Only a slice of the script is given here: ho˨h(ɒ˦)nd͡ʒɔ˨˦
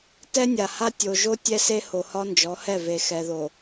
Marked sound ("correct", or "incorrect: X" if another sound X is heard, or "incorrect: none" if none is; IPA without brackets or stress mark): correct